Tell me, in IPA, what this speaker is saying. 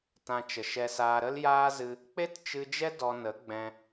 t ã˧ t͡ʃ ə˨ ʃ ɛ˧ s aː˧ ɾ ə˦ l j aː˦ z ɨ˧ | k͡p e˦ t t͡ʃ ɨ˧ d͡ʒ ɛ˦ d ɔ˧ n ə˨˦ ɡ͡b ɛ̃˧

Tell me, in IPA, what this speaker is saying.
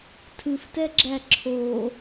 tʰ ɨ f t ɛ ɡ͡ǁ æ ǁʰ o

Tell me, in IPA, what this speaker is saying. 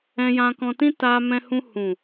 ɛ̃˧ j ã˧ k ɔ̃˧ t ĩ˦ t a˧ m ɛ̃˧ h ũ˧ h ũ˨

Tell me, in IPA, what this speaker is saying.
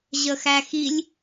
ʑ ə x æ x i lʲ

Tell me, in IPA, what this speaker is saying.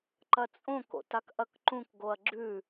ǃ ɐ t͡sʼ õ k o̰ t a k ʔ ɐ k ǃ ũ k ɡ o ɐ̯ ɡ͡ǁ ʉ

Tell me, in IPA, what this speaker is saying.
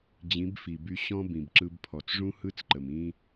d͡ʑ ĩ˨˦ b f i˨ b y˧ ɕ ɔ̃˦ b ĩ˨ b ǁ ɯ˧ b pʰ ɔ˨ t͡s ʐ ũ˦ h ɯ˦ t͡s ǃ ə˨ m ĩ˦

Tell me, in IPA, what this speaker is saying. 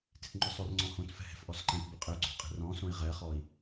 t e̤ t ŋ͡ǃ ʊ sˤ ʊ r ŋ͡ǀ ɔ̃ h õ t f ɛ̤ h ɛ̤ f ʔ ɔ s ǃ ɛ̃ t b ʊ qʼ ɪ u̯ ɡ͡ǀ ɔ̤ qʼ e̤ r ɔ̃ s õ i̯ ʁ ɛ χ ɔ i̯

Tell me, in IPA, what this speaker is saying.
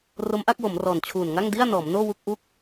r o˦˥ m ʔ a˥˩ k̚ w o˩˦ m r ɔː˨˩ n t͡ɕʰ uː˨˩ n ŋ a˥˩ ŋ d i˥˩ a̯ n ɔː˩˦ m n oː˥˩ w u˥˩ k̚ ʔ u˥˩ k̚

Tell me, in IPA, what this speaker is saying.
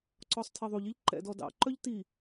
ǀ ɔ sˤ tʰ i ðˤ u ʎ i ʎ ǃ ɛ̰ d ɔ d ɑ̰ ǃ œ ʎ t i

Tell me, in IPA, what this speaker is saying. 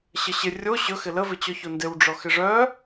ɕ ə ɕ ɪ rʲ o ɕ ɵ x ɪ l ə v ɪ t͡ɕ ɔ ç o n d ɪ w ɖ͡ʐ ɔ x ɪ ʐ œ

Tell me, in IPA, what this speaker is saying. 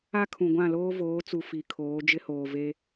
a˦ kʰ ũ˨ ɡʷ ã˦˨ l oː˦ v oː˨˦ t͡s u˨ f i˨ kʰ oː˨˦ d͡ʒ ɪ˦ h oː˨ v e˦

